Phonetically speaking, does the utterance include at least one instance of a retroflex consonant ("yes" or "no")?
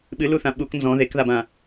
no